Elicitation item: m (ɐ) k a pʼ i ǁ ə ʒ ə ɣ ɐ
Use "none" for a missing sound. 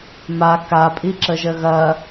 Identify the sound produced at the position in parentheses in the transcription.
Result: a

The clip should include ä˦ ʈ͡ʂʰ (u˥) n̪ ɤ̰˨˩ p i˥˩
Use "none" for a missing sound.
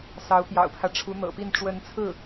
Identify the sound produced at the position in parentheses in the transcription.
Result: u˧˥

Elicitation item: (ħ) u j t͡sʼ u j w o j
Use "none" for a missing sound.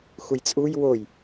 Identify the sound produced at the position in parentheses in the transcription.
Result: x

